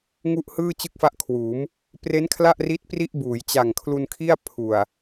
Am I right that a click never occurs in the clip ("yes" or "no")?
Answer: yes